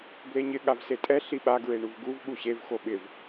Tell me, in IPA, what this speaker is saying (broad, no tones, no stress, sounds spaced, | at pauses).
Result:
b l e ɲ ɪ ɠ a v s e tʼ ɛ ɬ i ɓ a ɡ ɹ e ɳ u v ɡ u v ɠ u ɕ e v x o ɓ ɪ v